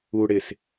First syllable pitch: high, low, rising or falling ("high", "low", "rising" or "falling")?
low